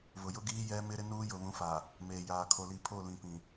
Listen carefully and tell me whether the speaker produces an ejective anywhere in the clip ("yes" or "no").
no